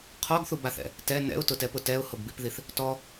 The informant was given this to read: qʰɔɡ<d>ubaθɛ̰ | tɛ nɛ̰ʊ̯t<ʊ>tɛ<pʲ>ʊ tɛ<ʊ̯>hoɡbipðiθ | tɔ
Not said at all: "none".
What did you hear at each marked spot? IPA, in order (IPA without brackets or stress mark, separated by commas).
θ, ʊ, p, ʊ̯